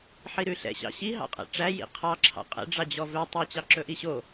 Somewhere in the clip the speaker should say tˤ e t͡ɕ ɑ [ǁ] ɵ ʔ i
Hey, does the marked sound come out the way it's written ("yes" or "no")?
yes